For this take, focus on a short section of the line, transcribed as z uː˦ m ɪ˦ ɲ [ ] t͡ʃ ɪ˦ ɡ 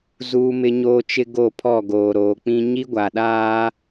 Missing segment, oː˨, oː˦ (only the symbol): oː˦